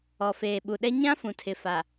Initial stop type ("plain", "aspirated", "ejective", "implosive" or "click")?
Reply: implosive